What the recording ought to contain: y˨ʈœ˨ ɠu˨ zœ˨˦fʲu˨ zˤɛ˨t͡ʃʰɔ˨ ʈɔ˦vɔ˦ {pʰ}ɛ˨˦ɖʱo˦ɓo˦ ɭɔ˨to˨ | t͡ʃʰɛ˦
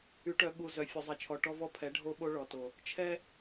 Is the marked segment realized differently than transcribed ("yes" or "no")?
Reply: no